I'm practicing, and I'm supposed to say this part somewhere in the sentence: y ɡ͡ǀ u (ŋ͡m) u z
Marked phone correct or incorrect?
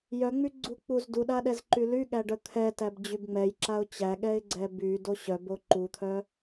incorrect